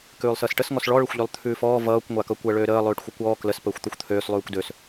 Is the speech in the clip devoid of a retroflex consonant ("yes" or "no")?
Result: no